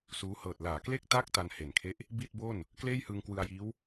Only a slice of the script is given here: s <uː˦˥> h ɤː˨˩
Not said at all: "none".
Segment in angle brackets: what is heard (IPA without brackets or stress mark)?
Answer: uː˦˥